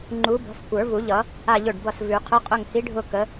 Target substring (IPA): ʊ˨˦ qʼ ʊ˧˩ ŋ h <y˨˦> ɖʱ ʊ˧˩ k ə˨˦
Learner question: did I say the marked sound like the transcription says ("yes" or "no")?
no